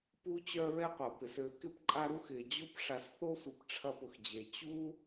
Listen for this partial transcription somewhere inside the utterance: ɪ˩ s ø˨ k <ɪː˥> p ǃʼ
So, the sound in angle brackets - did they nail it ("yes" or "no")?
no